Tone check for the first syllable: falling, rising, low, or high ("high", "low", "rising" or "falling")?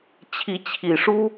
rising